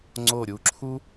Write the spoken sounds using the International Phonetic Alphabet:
ŋ͡ǀ o˧˩ ɾʲ u˩˧ ǁʰ u˥

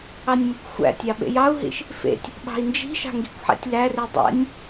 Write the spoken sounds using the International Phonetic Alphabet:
ɑ nʲ m o kʷ xʷ æ̰ tʲ ɑ ɓ ḛ j ɑ u̯ ɦ ḭ ʃ | f ḛ tʲ | ɓ ɑ̤ i̯ n d͡ʒ i̤ ʃ ɑ̤ ŋ ɡ i̤ kʷ ħ æ̰ tʲ l æ r i dˤ æ̰ nʲ

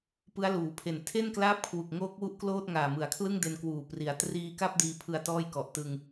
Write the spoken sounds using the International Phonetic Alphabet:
p ɯ˦˥ a̯ l uː˨˩ pʰ e˨˩ n tʰ e˥˩ n k l aː˦˥ p̚ kʰ w u˨˩ k̚ ŋ oː˦˥ k̚ w u˦˥ ʔ k l oː˥˩ t̚ ŋ aː˨˩ m ɯ˩˦ a̯ kʰ l ɯ˥˩ ŋ d e˧ n k w uː˨˩ p r i˩˦ a̯ t r iː˧ k a˥˩ p̚ d iː˧ pʰ ɯ˧ a̯ t ɔː˥˩ j k ɔ˨˩ ʔ t ɯ˧ ŋ

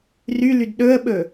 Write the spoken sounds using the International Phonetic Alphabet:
r y l y d ɗ ɵ ə̯ ɓ ɵ

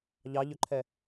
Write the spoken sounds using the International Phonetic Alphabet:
ʎ ɑ ʎ ø ǃʰ ɛ

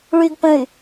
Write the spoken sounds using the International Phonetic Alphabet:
ɭ y ɡ p ə̃ y̯

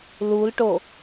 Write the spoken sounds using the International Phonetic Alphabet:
l u l ʈ o

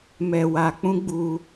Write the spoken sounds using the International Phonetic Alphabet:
m ɛ˨ w a˨ k͡p ũ˧ ɡ͡b u˧

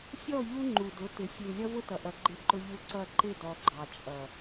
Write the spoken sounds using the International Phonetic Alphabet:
sʲ ɔ˦˨ ʎ u˦ ŋ͡ǃ u˨ d ʊ˨˦ t ɪ˨ sʲ u˨ lʲ ʌ˦ v ʊ˦ t ʌ˨ ʔ ʌ˨ ɡ͡ǃ ɪ˦ ǃ ʊ˦ ʎ u˦ ǀ ʌ˦˨ ǃ ɪ˦˨ d ɔ˨ ɡ͡ǃ ɑ˨ t͡ʃʼ ʌ˨

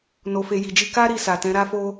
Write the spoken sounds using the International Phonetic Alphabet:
n o˨ f e˨ j i˨ d͡ʒ i˧ k a˦ ɾ i˧ s a˨ t ɛ̃˨˦ ɾ a˧ f o˧

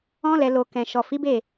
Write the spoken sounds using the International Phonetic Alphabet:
ɔ̃˦ l ɛ˧ l o˧ k ɛ̃˨ ʃ ɔ˨ f i˨˦ b e˦˨

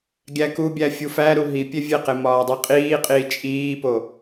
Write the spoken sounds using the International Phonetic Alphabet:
ɡʲ æ k u bʲ æ fʲ u f æ ɾ u ɦ i pʲ e vʲ e q e m ɒː dˤ i qʼ iː qʼ iː t͡ʃʼ iː p o

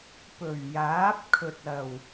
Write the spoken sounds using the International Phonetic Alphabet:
p ɵ˨˩ ɥ j aː˨˥ p̚ kʰ ɵ˨ t̚ ɐ˨˩ w

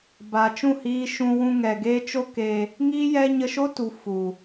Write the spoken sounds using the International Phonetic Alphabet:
b a˨ t͡ʃ ũ˦˨ h iː˧ ʃ ũ˧ w ũ˧ ŋ ɛ˨ ɡ eː˦ t͡ʃ o˦ k eː˧ | ŋ iː˦ j ɛ˦ ɲ ə˧ ʃ o˦ t u˨ f u˨

